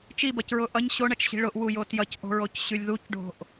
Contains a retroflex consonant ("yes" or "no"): yes